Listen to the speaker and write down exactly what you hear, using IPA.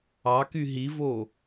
ɑ k y ɦ i v o

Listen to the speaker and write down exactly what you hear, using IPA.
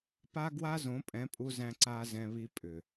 p a˦ ɡ w a˦ z õ˨˦ pʼ ɛ̃˨˦ pʼ u˧ z æ̃˧ ǀ a˧ z ɛ̃˧ β i˧ pʼ ʏ˨

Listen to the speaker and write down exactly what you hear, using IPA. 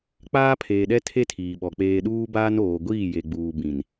k͡p aː˦ pʰ eː˨ ɗ ɛ˦ tʰ e˦ tʰ iː˨ ɓ ɔ˨ k͡p eː˨ ɗ uː˦ b aː˦ n oː˨ ɡʷ iː˦˨ j e˨ ɡ͡b uː˨ b ĩ˨ n

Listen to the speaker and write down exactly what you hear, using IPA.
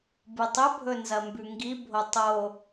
b ɨ tˤ ɵ bʱ ɵ n z ɐ m b ʉ ŋ ɡ i bʱ o tˤ o

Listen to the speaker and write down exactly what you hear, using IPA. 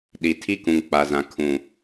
ɗ i˨ tʰ i˦ k ũ˨ ŋ k͡p a˨ z ã˨ kʰ ũ˨

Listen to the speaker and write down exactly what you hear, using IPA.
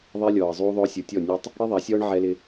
ðˤ ɛ˦ lʲ ɔː˨ ə̯ zˤ uː˦ ðˤ ʊː˦ sʲ u˨ tʲ ɔ˦˨ nʲ a˦ tˤ | ɽ i˦ ðˤ a˨˦ sʲ ɔː˦ ɳ ʕ ɛ˦ l ɪ˦

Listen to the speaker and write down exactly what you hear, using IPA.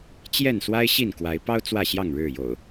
t͡ɕ j ɛ˥˨ n s w a˦ ɪ̯ ɕ i˥˨ n k w a˨˦ ɪ̯ p ɑ˦ ʊ̯ t͡s w ä˥˨ ɕ j ɑ˥˨ ŋ ɻ ɻ̩˥˨ j o̰˨˩ ʊ̯

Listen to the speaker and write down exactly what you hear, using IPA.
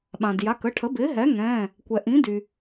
ɓ ã˩ d j a˩˧˩ k ə˩˧˩ ʈʰ ə˩˥ b ɪː˩˥ ɦ ɛ˩˥ ŋ ɛ̃ː˩˧˩ | kʷ ɛ˩ ʔ ĩ˩˥ d y˩

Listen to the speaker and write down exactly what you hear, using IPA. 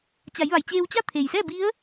t͡ɕ a˩˧ j ʋ a˩ j t͡ɕ eː˧ w t͡ɕ a˥˨ t̪ʰ e˩ j s ɛː˥˨ b i˧˥ ə̯

